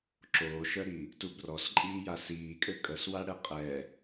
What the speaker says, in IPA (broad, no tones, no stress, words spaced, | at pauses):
ǁoːʃœɾi | tubrɔsǃʼiː jasiːkʼø kʼəswaɽɛ qʼɛ